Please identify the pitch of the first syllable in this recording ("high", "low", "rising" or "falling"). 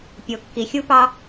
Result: low